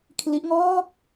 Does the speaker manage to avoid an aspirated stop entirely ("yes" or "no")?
no